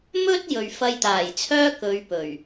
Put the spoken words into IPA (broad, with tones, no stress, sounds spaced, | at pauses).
m ɵ˥ t̚ j ɵ˨ ɥ f ɐ˧ j t̪ aː˨˩ j t͡sʰ œː˥ k ɵ˨˧ ɥ p ɵ˨˩ ɥ